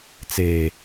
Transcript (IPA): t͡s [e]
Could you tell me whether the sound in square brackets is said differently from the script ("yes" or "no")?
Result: no